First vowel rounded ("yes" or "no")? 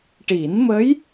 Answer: no